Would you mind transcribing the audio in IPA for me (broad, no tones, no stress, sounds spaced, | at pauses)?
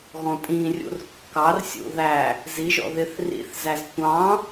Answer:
ɣ ɔ̃ tʼ ĩ rʲ ṵ r kː ɑ r sʲ ṵ ð æ | z i ʒ ɔ̰ ð ɪ θ r ḭ θ z æ z tʷ ɑ̃